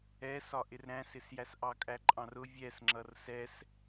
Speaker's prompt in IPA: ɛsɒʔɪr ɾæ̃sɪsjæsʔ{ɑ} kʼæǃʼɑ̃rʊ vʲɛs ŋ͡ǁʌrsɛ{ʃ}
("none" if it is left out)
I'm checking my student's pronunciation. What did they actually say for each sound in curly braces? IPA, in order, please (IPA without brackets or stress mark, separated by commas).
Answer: ɑ, s